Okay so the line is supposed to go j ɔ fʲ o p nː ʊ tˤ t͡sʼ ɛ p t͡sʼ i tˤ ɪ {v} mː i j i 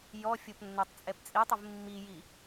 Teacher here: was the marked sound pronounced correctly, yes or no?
yes